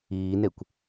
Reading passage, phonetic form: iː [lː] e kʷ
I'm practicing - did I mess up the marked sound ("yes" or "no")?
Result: yes